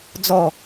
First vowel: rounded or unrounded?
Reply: rounded